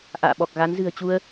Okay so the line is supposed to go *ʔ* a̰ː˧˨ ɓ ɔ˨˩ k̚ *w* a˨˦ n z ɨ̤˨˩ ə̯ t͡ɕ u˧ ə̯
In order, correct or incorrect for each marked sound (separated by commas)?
correct, incorrect